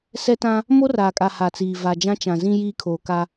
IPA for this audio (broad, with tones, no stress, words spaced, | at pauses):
sɛ˦tã˦ | mo˦raː˨kʼa˨ ha˨t͡siː˨ va˨d͡ʒã˦t͡ʃã˨zĩ˦ jiː˦kʰoː˨ ka˦